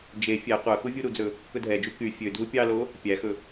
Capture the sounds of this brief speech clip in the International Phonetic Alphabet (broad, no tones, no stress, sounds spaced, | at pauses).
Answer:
d͡ʒ e fʲ ɛ qʷ œ x u vʲ u ɾ u d͡z ɵ | k ɵ dʱ ɛ d͡ʒ u k y fʲ ø dʱ u pʲ ɑ l o | pʲ æ x ɵ